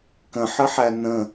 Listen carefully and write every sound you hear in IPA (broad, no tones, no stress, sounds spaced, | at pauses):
k ə̃ ħ ə ħ æ n ə̃